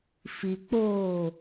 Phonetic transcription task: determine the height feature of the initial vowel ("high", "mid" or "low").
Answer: high